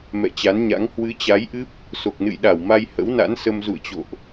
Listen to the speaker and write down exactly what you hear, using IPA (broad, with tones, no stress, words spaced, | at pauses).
mɛ̰˧˨t͡ɕa˨˦nɲa̰˧˥ŋ hwɨ˨˦t͡ɕa˨˦jʔɨ˦˥p̚ | so˨˩k̚nɨ̰˧˨jɗa˧˩wma˧j hə̰˧˥wna̰˧˥nsə˧m zṵ˧˨ə̯t͡ɕo̰˧˨ʔ